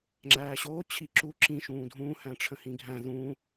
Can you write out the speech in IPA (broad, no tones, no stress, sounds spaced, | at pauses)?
ŋ͡ǁ æː ɕ oː t͡ɕʰ i ǁ u ǁ ĩ ʃ ũː dʱ ũː h æ̃ ʈ͡ʂʰ ə̃ h ĩ ɡʱ æ̃ ð ũ